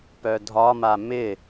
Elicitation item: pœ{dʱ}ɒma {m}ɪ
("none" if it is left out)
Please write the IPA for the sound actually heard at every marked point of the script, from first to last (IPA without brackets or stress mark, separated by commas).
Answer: dʱ, m